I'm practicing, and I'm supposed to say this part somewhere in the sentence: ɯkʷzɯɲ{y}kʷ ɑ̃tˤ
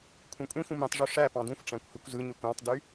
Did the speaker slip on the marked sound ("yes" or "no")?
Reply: yes